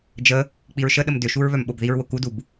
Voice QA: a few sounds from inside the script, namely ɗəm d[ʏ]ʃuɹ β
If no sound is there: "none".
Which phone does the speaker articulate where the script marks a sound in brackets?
ʏ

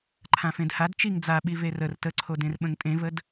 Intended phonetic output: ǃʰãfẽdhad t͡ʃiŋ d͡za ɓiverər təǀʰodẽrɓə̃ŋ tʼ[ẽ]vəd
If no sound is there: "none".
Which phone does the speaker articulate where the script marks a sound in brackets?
ẽ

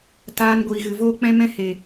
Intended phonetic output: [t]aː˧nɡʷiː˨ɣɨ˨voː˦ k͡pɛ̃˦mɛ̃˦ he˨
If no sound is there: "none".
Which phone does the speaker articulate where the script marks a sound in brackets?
t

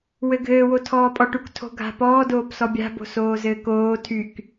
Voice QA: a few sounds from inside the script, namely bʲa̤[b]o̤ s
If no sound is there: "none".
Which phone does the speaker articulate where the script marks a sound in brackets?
b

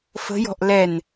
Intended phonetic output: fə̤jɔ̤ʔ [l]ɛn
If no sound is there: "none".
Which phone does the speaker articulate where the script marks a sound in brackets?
l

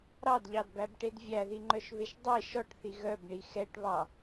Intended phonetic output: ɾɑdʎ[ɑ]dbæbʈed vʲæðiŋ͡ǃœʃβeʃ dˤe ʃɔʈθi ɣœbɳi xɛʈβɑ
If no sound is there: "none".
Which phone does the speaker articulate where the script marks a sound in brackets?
ɑ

